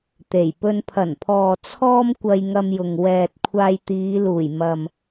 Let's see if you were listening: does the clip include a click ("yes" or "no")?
no